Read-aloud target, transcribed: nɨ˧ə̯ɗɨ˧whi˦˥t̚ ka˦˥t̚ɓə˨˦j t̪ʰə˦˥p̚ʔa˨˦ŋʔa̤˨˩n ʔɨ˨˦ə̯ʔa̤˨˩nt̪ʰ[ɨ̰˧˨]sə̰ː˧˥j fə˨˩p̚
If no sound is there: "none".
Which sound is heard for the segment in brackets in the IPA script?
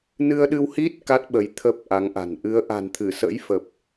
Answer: ɨ˧˩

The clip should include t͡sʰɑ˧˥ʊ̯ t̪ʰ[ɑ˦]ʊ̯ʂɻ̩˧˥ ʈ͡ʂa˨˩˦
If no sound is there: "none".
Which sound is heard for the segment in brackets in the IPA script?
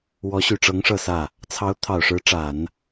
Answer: ɑ˨˩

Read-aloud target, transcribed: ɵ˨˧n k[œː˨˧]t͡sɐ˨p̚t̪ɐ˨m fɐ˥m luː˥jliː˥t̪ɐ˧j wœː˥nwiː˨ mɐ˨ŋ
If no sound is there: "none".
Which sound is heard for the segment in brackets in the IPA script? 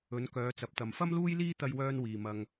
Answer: œː˨˧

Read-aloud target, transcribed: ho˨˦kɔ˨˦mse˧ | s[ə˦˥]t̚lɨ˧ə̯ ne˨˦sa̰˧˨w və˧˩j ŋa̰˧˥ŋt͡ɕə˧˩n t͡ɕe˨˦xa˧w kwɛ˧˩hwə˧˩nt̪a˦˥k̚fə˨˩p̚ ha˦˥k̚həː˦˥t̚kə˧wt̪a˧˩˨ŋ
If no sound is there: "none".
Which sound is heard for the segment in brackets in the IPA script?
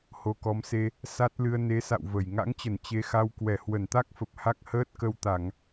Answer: a˦˥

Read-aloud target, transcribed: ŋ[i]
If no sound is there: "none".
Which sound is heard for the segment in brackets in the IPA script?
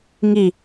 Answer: i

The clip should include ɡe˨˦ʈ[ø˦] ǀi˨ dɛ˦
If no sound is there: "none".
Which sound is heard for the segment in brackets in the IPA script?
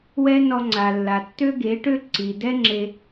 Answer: ø˦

